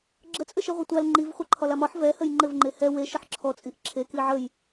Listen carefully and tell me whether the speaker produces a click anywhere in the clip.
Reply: yes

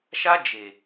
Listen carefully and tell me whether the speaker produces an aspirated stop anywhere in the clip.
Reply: no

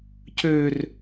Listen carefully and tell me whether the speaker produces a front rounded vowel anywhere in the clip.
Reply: yes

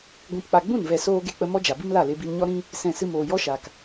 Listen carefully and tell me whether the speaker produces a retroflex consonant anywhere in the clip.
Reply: no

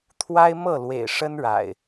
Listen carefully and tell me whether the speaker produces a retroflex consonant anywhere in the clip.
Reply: yes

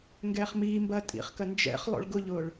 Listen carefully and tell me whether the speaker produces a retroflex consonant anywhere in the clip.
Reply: yes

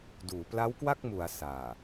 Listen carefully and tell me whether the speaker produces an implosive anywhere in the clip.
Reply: no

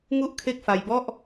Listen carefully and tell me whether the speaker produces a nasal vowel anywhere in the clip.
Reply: no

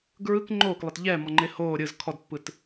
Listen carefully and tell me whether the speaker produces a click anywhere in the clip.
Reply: yes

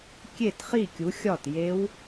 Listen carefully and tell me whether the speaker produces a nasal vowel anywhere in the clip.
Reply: no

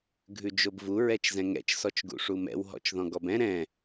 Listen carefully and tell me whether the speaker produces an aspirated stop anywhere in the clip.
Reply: no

